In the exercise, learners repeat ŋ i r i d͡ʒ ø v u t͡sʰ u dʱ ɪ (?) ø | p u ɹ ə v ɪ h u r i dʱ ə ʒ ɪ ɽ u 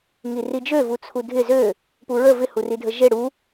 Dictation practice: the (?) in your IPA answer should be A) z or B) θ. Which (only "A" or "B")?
A